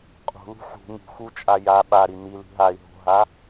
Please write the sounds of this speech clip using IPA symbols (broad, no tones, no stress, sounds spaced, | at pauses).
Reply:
qʼ ṳ l ṳ ħ ṳ ŋ ṳ x u t͡ʃʼ a j a ɓ a ɾ i n̪ i l i̤ ɦ a i̯ ɦ o̤ ɦ a